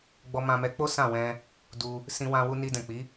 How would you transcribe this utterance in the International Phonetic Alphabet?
ɡ͡bɔ˧mã˧mɛ˧k͡po˦ sã˦˨wɛ̃˧ | du˧ | sĩ˧wã˧ wu˧ni˧dɛ̃˨k͡pi˨˦

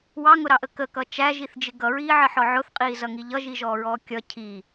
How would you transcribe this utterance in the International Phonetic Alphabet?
wɑŋʊɾɑʔə kəkʌ t͡ʃæʒiθd͡ʒɪ ɡʌɹiːʕəħɔ ʕʊθqʼiːzʌŋi ʎʌʒiʒɔːɹɔː kʲʌ cʰi

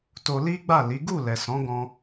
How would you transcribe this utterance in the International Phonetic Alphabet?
to˧li˦ɡ͡ba˦˨ li˨˦ ɡu˦˨lɛ˨sɔ̃˨˦ ɡɔ̃˦

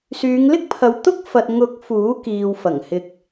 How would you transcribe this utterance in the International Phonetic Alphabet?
syː˨˧ŋlɪ˥k̚pʰɐ˨˧w t̪ʊ˥k̚fɐ˨t̚ŋʊ˨˥k̚ fuː˨˥kiː˨wfɐ˨˩ŋ hɪ˨k̚

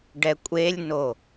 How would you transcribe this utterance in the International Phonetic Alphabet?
ɖɛkʷʼelʲno

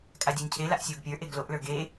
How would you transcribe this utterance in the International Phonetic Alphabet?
kʼadʲɔɲcʰe laʔsʲoɡpʲə˞ ʔeɡloʔ lə˞ɡe

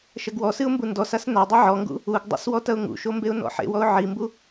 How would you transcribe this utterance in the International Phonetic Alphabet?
ʃɐɡwɔsɨʊ̯ mbundɔsas nadˤɛ ʕɔŋɡṵ | uɡdˤṵs wɔtɐʊ̯ŋṵʃo mbeʊ̯nɔ̰ħḛwɔʊ̯ ʕimbu

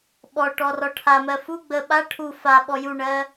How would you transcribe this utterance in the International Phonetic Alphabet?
ɓɔ ʈɔrɔʈʰamɜ fu ɡ͡bə ɓa ʈʰu fa ɓɔjuɳɜ

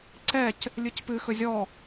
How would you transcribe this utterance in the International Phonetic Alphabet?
ǀɛc | lʲɨcpɨ xɵzʲɔ

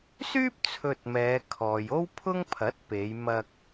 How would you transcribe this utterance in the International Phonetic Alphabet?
syː˥p̚ t͡sʰɵ˧t̚mɛː˨˧kʰɔː˨j o˥wpʰʊ˥ŋpʰɐ˨˥t̚pe˨˧j mɐ˧k̚

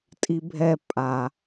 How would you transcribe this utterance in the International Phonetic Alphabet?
tʼibʱɛ pʼa

